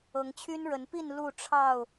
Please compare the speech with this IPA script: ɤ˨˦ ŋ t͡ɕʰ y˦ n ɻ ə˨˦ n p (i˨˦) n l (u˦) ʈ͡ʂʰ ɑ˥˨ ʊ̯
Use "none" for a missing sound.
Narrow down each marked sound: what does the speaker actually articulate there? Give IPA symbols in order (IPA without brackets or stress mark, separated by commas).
i˥˨, u˥˨